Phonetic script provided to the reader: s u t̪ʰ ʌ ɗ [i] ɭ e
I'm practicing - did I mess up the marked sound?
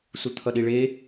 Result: no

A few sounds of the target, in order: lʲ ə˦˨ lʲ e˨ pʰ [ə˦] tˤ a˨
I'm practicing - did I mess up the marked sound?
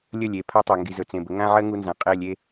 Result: yes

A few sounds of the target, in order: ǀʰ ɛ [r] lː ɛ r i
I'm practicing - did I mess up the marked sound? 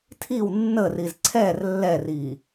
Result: no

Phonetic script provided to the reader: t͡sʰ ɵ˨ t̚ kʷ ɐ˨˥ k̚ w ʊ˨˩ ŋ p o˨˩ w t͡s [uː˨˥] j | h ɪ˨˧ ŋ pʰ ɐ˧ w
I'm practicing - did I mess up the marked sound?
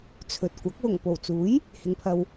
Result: no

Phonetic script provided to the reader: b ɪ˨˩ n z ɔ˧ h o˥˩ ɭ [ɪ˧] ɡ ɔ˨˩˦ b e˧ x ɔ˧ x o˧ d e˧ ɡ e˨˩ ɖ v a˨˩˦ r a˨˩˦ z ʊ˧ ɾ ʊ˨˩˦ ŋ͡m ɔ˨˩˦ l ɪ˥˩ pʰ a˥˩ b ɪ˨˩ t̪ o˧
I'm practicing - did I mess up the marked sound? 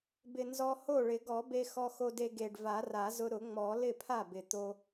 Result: yes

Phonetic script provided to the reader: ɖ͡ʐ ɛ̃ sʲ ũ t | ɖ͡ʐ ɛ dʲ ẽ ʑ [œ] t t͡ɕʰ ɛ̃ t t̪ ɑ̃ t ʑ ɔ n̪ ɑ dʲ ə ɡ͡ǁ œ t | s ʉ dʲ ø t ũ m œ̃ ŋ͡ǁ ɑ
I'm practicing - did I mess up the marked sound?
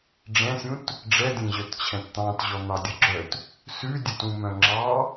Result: no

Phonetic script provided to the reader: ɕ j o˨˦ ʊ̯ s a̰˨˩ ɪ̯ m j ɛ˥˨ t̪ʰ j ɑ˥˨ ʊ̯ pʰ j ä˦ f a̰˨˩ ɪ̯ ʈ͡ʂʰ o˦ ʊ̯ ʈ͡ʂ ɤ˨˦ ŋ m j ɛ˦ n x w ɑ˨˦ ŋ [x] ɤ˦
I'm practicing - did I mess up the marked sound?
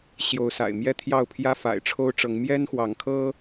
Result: yes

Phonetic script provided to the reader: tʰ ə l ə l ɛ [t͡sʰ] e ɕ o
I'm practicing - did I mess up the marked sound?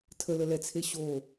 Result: no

